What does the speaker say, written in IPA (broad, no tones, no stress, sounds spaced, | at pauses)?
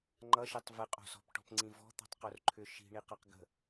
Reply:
ŋ͡ǃ ʌ ʃ e tˤ v ɨ qʼ o̤ s ɔ̤ p ʈ ɔ̤ p ŋ͡ǀ ĩ v ɔ̤ t̪ ɔ̤ tˤ q o r ǃʰ ʏ ʃ i̤ ɳ i q ʌ q ɡ ə̤